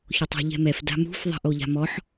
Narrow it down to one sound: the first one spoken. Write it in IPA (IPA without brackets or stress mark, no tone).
ç